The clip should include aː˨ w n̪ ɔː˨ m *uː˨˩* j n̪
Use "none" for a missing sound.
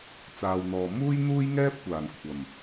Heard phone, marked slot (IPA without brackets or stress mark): uː˥